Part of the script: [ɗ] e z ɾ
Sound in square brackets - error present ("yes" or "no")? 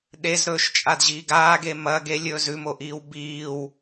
no